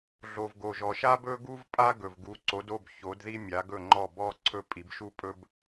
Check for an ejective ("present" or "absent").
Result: present